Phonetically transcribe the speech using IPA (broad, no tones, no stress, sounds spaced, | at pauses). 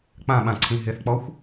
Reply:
k͡p ã ɓ ã ǀʰ ĩ ɦ ɪ θ k͡p ɔ xʷ